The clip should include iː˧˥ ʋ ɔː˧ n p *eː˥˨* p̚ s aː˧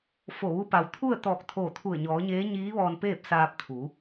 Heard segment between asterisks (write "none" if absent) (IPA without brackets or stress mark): eː˥˨